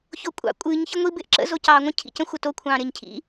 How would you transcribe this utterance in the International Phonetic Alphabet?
ç o kʷʼ ɑ̰ kʷʼ ɨː ɲ ç ə ŋʷ i b ɪː ʔ ǁ ə̰ z o c ɑː ŋʷ ə̃ cʰ ḭ c ə̃ xʷ ə t o kʷʰ ɑ̃ː ɾ ɪː ɲ cʰ ḭ

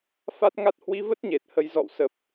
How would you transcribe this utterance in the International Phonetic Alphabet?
f a˦˥ t̚ ŋ a˦˥ t̚ h w i˧ v ə˦˥ t̚ ɲ e˨˩ t̚ h ə˨˦ j z ɔ̰˧˨ w s ə˨˩ p̚

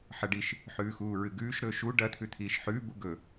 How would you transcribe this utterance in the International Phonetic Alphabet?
ħ ɐ ɖ i ʃ | ħ ʉː x uː ɹ ɨ ɡ ʉː ʃ ɾ ɵː ʃ u ɖ ɐ t̪ʰ ʉ t̪ʰ iː ʃ ħ ʉː b u ɡ ɵ

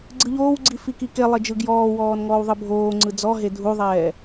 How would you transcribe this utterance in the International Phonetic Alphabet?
ɡ͡ǀ ɯ ʎ oː w ɡ͡ǀ i f i k i k e lˠ e d͡ʒ ɯ ɡ j ɔː w ɔː n ŋ ɔː w ðˤ ɯ bʱ oː ŋ͡ǀ ɯ d͡z ɔ ɦ e dʱ u ðˤ ɛː

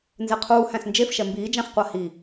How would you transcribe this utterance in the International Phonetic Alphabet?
n z e qʰ uː h æ̃ s n d͡ʒ e f ʃ ɛ m b iː d͡ʒ æ̃ χ qʷ a h i

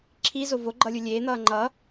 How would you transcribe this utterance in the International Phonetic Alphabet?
ǁʰ i z o v o ɡ͡ǃ ʌ lʲ u lʲ eː n̪ ʌː ŋ͡ǃ ʌ

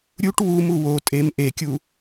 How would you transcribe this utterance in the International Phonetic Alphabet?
ɾʲ u ʈ w u m u w o tʼ e m ʔ e kʲ u

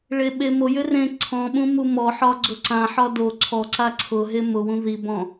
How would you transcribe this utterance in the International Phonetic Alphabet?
ɭ e ɓ e m o j ʏ r ẽ ǀʰ ɔ̃ ɓ ũ m u m ɔ ħ ɒ ɡ͡ǀ ʊ ǀ ã ħ ɒ d o ǀʰ ɔ ǀ a ǀʰ ʊ ɦ e m ʊ w ũ ð i b ɔ̃

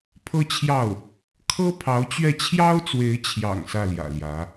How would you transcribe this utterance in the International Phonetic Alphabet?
pʰ ɤ˥ t͡ɕʰ j ɑ˥˩ ʊ̯ | kʰ ɤ˥ pʰ ɑ˧˥ ʊ̯ t͡ɕ ɥ ɛ˥˩ t͡ɕʰ j ɑ˥ ʊ̯ t͡s w e˧˥ ɪ̯ t͡ɕʰ j ɑ̰˨˩ ŋ s ä˥˩ l j ä̰˨˩ l j ä˧˥

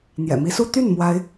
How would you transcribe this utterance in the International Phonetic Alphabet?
n̪ j ɛ̰˨˩ m i˧˥ s u˥ t̪ y˥˩ n m w a˥ ɪ̯

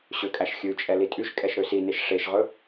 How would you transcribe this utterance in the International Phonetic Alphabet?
ɕ ø kʼ æ ʃ xʲ ʉ t͡ʃʼ ɛ l i tʼ y ʃ kʼ ɛ ʃ ɾ ø s i n e ʃ ʂ e ʃ ʁ ɵ

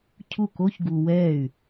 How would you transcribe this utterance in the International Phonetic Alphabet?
cʰ u˥˩ k o˥ ç ɡ u˧ w ɛː˥˩ y̯

